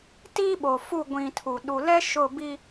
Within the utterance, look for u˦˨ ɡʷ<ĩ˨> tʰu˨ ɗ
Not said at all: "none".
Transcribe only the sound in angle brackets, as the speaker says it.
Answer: ĩ˨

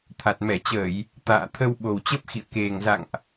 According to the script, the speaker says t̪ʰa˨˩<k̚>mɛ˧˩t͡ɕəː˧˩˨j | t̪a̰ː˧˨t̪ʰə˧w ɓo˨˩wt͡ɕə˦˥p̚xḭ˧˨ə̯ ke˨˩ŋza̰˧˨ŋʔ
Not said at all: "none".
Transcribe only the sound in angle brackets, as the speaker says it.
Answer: t̚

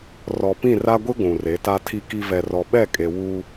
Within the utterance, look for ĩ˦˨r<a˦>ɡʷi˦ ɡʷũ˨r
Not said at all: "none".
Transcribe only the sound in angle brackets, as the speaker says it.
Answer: a˦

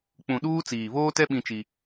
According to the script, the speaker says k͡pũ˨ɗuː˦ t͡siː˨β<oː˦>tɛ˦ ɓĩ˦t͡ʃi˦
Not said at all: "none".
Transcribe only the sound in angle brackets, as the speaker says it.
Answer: oː˦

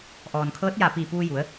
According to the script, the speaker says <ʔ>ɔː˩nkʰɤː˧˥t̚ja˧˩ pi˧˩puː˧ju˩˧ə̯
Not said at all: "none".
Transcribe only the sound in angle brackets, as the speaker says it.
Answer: ʔ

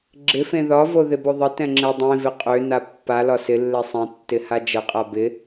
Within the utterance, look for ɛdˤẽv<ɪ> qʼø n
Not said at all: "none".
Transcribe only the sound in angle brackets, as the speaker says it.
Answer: ɪ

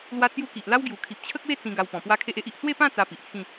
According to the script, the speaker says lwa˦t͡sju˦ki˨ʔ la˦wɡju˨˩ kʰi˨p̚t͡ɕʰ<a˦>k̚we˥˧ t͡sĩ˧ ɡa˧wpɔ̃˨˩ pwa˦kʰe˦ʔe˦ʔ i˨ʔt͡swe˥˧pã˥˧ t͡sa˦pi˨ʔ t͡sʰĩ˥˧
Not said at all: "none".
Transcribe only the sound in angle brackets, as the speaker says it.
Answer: ə˦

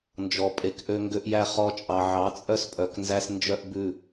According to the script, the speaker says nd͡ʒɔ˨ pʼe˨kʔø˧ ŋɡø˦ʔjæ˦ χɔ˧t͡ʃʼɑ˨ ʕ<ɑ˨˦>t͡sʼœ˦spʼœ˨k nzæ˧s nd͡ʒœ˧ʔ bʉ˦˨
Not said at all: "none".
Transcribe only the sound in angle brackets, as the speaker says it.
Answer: ɑ˨˦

